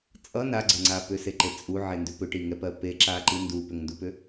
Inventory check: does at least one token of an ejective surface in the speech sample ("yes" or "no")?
yes